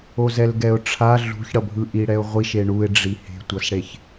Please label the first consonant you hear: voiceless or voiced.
voiced